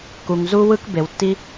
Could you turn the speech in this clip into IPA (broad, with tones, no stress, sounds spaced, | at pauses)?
k u˨ ŋ z u˦ w ɯ˥ k b e˨ w tː i˥